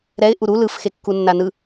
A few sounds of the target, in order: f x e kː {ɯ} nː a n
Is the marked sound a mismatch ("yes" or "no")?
yes